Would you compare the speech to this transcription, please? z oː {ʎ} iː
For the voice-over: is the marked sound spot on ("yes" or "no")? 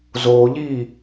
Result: yes